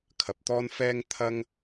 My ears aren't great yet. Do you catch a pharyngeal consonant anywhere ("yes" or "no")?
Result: no